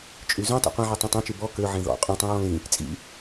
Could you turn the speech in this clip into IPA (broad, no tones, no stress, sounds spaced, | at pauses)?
t͡ʃʼ y z ũ tˤ ṵ qʷ ẽ ʕ y tˤ ẽ tˤ ẽ t͡ʃ ʉ b ɔ k ø ʕ ẽ ð ɔ̰ qʼ ũ tˤ ũ ɹ ɔ̃ l ĩ | t͡sʼ ḭ